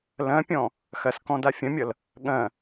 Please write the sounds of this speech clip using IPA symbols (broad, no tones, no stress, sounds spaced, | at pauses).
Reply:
l ɐ̃ pʲ ɔ̃ | x ɐ s k ɔ̃ d a fʲ ɐ̃ mʲ ʌ l | ɠ ɐ̃